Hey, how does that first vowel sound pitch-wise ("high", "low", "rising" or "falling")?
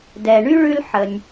low